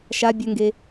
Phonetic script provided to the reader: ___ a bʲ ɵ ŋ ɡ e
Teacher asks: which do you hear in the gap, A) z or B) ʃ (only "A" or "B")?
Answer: B